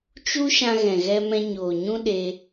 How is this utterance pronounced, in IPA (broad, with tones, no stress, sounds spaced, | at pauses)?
t͡ʃ u˦ ʃ ã˧ ɣ ɛ̃˨ ɣ ɛ˧ m ɛ̃˧ ɲ oː˨ ɲ ũ˧ ɗ e˧